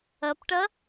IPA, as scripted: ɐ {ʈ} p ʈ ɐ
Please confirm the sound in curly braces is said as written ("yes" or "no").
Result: no